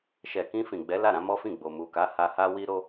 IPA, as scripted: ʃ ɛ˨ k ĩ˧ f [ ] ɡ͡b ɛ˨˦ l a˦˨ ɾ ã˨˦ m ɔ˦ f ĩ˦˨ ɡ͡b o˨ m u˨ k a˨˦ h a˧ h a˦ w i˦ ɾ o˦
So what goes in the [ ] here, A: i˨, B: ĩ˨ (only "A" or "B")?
B